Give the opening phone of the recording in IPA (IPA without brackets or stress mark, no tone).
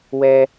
w